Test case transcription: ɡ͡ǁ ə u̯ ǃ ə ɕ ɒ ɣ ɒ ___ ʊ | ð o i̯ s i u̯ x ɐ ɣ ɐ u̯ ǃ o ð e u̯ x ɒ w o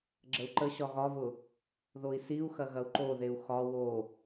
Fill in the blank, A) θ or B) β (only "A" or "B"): B